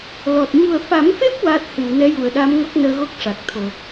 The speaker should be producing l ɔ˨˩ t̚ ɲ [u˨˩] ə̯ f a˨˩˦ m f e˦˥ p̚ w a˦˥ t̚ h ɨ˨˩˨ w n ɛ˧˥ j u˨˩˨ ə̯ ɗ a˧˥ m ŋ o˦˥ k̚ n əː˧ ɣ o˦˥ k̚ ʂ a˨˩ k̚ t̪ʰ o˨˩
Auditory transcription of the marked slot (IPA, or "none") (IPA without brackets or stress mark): u˨˩